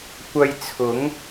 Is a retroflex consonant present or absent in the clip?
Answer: absent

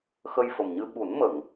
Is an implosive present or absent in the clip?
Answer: present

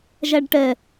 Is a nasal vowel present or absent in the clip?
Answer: absent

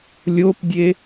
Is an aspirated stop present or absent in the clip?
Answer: absent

